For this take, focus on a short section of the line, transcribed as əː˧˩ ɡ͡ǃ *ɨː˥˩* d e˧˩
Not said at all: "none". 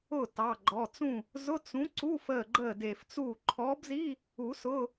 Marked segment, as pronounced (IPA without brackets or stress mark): əː˥˩